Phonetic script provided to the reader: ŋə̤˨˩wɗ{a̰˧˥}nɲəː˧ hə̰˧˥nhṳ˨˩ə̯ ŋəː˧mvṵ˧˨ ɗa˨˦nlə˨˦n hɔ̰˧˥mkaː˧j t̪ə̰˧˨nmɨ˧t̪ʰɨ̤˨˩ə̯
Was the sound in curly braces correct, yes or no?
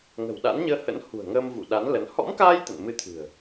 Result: yes